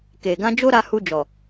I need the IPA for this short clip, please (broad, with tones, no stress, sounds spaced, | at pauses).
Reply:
k e˨ ɡ ã˧ d͡ʒ o˦ ɾ a˧ h u˧ d͡ʒ ɔ˨